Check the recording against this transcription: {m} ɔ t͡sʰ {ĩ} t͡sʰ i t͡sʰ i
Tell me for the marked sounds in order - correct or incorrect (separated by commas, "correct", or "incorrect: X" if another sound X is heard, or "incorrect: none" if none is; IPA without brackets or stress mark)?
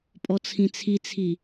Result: incorrect: pʼ, correct